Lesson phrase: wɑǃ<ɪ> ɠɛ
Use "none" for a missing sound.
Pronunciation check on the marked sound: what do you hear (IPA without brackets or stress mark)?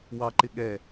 ɪ